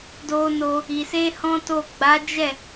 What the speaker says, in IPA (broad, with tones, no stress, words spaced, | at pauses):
do˧no˧ | i˨ se˧ hɔ̃˦to˦˨ ɡ͡ba˨˦d͡ʒɛ˦˨